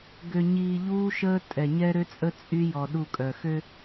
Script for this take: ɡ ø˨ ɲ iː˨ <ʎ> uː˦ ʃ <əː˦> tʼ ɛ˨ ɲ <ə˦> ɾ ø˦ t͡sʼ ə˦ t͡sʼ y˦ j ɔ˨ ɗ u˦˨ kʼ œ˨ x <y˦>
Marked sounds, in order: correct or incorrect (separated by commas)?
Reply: correct, correct, incorrect, incorrect